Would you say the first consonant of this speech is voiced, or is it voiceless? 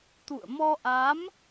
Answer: voiceless